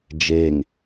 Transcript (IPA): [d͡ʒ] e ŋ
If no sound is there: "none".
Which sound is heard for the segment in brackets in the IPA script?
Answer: d͡ʒ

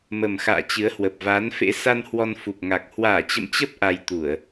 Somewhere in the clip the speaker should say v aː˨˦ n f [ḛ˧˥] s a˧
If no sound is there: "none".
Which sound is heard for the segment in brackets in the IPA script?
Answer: ḛ˧˥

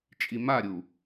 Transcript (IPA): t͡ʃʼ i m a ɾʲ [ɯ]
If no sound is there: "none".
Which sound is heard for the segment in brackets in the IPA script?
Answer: u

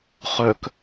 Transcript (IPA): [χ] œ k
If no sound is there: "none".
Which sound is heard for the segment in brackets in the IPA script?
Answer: χ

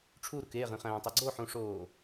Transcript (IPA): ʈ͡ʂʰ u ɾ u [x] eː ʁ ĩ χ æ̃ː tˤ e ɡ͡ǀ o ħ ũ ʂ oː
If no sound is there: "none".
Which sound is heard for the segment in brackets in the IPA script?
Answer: k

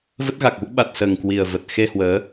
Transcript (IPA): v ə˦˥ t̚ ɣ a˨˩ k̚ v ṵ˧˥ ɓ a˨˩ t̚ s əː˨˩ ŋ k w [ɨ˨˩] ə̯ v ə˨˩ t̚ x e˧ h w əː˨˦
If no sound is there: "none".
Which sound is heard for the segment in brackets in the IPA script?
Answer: i˨˩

